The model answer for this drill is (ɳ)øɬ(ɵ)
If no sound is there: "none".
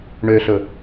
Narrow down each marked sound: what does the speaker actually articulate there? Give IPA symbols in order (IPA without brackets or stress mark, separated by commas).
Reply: ɳ, ɵ